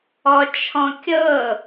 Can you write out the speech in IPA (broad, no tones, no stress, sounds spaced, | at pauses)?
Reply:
ɔ t͡ʃʰ ɔ̃ kʲ ɤ